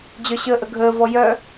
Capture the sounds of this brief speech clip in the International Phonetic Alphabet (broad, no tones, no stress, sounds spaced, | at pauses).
d͡ʑ œ ɕ əː ʔ ə ɡʱ əː v ɔ j œ